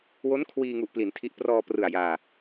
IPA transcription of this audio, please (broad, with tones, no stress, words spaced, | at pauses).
wo˦˥n kʰwiː˧ŋu˨˩ʔpli˩˦n tʰi˦˥ʔ prɔː˧prɯ˨˩a̯ jaː˧